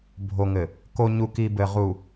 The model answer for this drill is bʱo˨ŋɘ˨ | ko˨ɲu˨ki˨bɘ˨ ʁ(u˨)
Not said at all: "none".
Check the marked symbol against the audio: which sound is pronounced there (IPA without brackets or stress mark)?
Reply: u˨